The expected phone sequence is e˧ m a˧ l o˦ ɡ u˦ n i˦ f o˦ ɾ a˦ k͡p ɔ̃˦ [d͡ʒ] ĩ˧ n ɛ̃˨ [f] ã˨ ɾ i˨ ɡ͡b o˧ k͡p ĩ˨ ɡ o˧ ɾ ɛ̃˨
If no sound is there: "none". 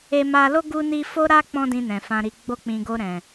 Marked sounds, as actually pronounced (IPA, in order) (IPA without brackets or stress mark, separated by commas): d, f